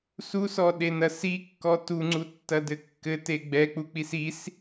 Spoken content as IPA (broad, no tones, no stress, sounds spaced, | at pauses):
s u s ɔ ɗ e n ɐ s i kː ɔ t u ŋ͡ǀ u tː ɐ d ɘ kː ɘ t e ɡ͡b ɛ k͡p u k͡p i s i s